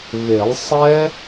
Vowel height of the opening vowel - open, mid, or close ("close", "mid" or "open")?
mid